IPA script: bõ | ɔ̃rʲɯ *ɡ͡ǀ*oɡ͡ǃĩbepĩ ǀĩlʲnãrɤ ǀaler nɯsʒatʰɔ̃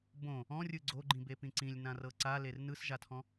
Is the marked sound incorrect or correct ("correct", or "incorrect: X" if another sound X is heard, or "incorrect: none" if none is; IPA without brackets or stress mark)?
correct